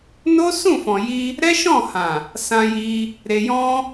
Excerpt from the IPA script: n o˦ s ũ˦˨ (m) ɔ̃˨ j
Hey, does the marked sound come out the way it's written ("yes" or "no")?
no